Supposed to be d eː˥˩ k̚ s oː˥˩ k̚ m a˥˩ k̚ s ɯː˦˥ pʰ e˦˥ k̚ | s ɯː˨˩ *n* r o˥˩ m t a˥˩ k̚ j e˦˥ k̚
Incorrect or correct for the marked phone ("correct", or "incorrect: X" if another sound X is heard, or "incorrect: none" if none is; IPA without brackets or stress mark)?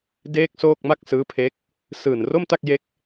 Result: correct